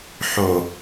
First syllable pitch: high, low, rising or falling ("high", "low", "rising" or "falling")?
low